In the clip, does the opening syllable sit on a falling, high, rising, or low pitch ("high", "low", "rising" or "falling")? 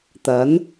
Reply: rising